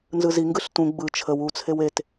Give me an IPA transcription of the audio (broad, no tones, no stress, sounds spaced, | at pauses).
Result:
n z ɯ z i ŋ ɡ ɯ ɬ t ũ ɡ͡b ɯ t͡ʃʰ ə w u t͡sʰ e w e t